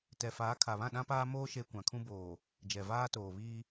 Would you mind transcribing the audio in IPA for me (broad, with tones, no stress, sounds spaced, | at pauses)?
t ɛ˨ f aː˨˦ kʰ a˨ β ã˦˨ ɗ ã˦ p aː˦ m oː˦ ʃ e˦ kʷ ã˨ kʰ ũ˦ b oː˨ | d͡ʒ ɛ˨ v aː˦ t oː˨ β iː˦